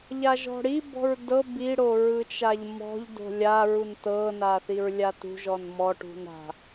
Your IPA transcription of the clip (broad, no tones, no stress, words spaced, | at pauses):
ʎaʒɔ̤ɽibɔ̤ɹ dɤ biɽo ɹɯt͡ʃaʎmɔ̤ʎdo̤ lʲaɹun tɤna θiɹlʲatṳʒɔn mɔʈṳn ɾa̤